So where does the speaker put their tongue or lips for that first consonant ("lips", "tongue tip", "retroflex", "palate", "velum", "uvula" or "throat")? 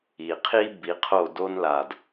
uvula